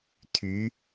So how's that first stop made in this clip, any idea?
aspirated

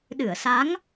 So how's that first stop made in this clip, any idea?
implosive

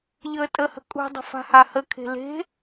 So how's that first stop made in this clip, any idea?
ejective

